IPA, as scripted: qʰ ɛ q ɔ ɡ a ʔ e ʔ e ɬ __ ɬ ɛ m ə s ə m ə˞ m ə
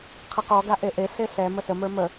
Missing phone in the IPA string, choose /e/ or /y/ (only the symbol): e